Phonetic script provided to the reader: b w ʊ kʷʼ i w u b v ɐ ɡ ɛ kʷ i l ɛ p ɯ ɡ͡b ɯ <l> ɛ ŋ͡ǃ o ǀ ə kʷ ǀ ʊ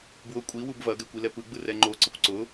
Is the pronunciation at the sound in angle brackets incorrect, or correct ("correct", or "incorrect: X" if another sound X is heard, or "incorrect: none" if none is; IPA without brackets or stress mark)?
incorrect: r